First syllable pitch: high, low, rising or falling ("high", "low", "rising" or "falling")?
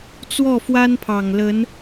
falling